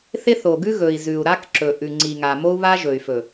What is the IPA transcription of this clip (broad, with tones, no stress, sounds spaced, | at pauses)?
θ ɪ˦ θ o˨ ɡ ʉ˦ ɣ ɵ˨ i̯ z ʉ˨ u̯ ɾ a˦ k ǁ ɵ˨ ʔ ʉ˨ ŋ͡ǀ i˨ ŋ a˨ m o˦ u̯ β a˦ ʒ ɵ˨ y̯ f ɵ˨